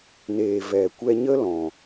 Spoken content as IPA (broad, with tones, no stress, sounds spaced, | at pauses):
n eː˨ v ɛ˨ kʷ ɛ˧ ɲ ə˦ l ɔ̃˨